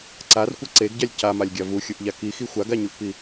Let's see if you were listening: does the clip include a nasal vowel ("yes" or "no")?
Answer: no